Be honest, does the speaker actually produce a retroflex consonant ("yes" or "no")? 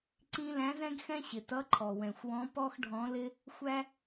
yes